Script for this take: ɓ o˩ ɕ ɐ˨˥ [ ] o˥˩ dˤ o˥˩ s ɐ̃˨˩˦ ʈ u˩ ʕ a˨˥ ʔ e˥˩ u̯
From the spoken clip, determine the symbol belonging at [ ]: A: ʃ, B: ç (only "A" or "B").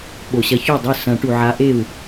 B